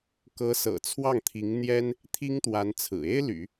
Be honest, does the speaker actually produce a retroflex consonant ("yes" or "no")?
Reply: no